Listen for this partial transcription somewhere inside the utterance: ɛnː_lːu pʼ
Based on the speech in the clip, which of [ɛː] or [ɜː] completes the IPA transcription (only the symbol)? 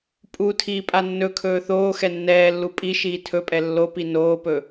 ɛː